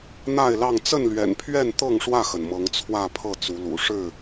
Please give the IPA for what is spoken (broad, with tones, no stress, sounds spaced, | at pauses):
n̪ a˥˨ ɪ̯ l ɑ˥˨ ŋ t͡s ə˥˨ n l ɥ ɛ̰˨˩ n pʰ ɥ ɛ˥˨ n t̪ ɤ˥˨ ŋ ʂ w ä˥˨ x ə˩ n m ɤ˨˦ ŋ t͡sʰ w ä˥˨ pʰ ɤ˥˨ t͡s u˨˦ l ṵ˨˩ ʂ ɻ̩˥˨